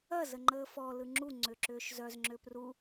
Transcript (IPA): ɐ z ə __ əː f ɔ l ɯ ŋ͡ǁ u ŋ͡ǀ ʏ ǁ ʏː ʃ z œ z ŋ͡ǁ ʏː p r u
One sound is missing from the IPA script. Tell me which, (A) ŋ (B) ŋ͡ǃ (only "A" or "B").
B